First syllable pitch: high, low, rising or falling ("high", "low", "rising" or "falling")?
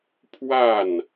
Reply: falling